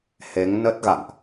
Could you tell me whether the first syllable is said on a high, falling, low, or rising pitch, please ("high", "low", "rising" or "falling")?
rising